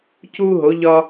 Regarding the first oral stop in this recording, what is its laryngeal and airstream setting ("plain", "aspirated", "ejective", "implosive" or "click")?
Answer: plain